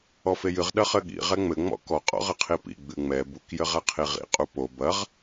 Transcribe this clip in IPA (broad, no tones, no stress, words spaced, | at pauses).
ɔfejɨʁ ɗɐχɘɠḭ ʁɛŋ͡mɘ ŋ͡mɔ̰kɔ qʼɔ̰ʁɘqʰipḭ ɡ͡bɨŋ͡mɛ buk jɘʁaqʰiʁḭ qʼupo bɐʁ